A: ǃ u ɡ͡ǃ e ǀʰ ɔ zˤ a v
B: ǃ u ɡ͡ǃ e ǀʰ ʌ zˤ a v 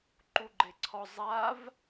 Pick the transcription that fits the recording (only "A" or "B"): A